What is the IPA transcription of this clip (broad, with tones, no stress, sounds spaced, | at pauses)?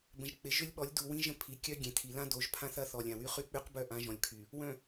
b ə̃˨ ʒ k͡p ɪ˨˦ ʒ ʏ˦ lʲ ɓ ɔ˨˦ lʲ d u˨ w ĩ˦ ʒ ə̃˦ pʰ i˨ kʲ œ˦ ɡʲ ẽ˨ tʰ i˨ l ã˦ d o˨˦ ʒ pʰ ã˦ θ ɐ˦ θ ɔ˨ lʲ ã˨ w y˦ χ y˦ k͡p y˦ q b œ˦˨ ʔ ã˦ ʒ ɔ̃˨ lʲ kʰ y˨ | w œ̃˨